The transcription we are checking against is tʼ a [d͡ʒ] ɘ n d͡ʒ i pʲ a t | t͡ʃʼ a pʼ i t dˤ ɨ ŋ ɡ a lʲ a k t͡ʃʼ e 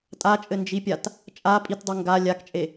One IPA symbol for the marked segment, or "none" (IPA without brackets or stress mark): t͡ʃʼ